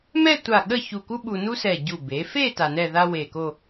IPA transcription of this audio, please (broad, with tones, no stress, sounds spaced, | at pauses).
m ɛ˥˧ tʷ a˧˩ ɠ ə˥˧ ç u˧˩ k u˥ ɓ u˧ n u˥ s ɛ˧˩ ɟ u˧˩ b e˩˧ f e˥˧ t a˧ n ɛ˥˧ ð a˥ w e˧˩ k o˥˧